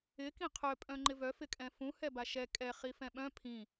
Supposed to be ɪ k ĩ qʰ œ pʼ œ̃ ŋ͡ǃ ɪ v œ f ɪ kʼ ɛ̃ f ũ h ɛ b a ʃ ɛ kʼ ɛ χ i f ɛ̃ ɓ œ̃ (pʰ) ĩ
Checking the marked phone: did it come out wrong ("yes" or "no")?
no